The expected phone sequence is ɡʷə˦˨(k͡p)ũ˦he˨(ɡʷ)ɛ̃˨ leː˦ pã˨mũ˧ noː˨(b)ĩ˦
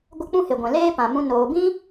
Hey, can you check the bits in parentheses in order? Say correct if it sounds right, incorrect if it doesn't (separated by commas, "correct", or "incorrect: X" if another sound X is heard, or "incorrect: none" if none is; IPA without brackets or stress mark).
correct, correct, correct